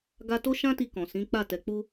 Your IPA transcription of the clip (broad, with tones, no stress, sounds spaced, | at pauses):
ɡ a˦ t o˦ ʃ ã˦ t i˧ k ɔ̃˨ s ĩ˨˦ k͡p a˦˨ t ɛ˨ k͡p u˧